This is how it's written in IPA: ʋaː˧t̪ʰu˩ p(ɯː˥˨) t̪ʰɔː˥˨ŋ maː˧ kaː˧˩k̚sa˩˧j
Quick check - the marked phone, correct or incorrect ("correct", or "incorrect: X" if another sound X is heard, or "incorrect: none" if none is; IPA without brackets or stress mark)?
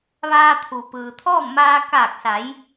incorrect: ɯː˩